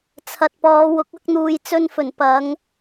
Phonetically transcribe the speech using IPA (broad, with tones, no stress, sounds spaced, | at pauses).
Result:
t͡sʰ ɐ˨ t̚ p ɔː˨˧ w ʊ˨˥ k̚ ɐ˧ k̚ n̪ uː˨ j t͡s ɵ˧ n f ɵ˨˩ n p ɐ˨˧ ŋ